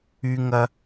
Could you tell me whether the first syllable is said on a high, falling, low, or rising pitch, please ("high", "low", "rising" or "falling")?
high